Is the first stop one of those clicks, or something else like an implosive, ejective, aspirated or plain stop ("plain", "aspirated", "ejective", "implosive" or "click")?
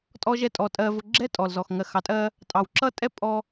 ejective